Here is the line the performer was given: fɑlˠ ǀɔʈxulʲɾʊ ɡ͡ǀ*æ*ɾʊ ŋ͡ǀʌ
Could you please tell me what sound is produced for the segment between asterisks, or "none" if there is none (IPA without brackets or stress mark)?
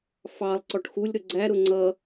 æ